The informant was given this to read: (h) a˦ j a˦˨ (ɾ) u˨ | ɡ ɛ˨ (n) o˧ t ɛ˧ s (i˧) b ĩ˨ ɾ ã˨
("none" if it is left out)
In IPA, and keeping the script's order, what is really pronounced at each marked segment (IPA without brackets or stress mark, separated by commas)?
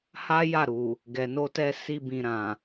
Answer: h, ɾ, n, i˧